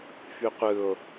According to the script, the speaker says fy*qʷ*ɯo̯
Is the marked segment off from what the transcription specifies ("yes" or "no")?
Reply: no